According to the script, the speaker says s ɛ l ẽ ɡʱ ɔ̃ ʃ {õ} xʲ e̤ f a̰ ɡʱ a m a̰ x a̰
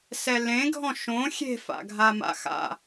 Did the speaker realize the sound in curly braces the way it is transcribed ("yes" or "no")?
yes